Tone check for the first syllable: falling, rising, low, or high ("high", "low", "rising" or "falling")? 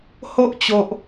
high